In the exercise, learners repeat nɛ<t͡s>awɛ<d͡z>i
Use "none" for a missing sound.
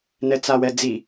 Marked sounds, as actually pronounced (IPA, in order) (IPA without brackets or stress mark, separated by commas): t͡s, d͡z